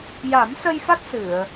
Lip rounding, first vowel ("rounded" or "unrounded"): unrounded